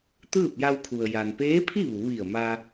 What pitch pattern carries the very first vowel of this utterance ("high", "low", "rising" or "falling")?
falling